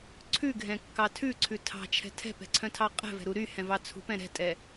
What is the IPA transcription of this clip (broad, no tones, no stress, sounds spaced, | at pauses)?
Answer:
ǀʰ ʉ ɡʱ ɛ̃ kː ɑ tʰ ʉ ǀʰ ʉ tʰ ɑ̤ t͡ʃʰ ɛ̤ tʰ ɛ̤ p ɛ̤ ǀʰ œ̃ tʰ ɑ qʼ ɛ̤ v ɛ̤ ɾ u ɾ y h ɛ̃ v ɑ t͡sʰ ṳ p ɛ̃ ɾ ɛ̤ tʼ ɛ